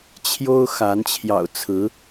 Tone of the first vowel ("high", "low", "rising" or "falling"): high